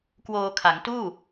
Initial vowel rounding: rounded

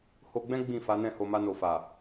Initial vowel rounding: rounded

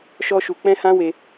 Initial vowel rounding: rounded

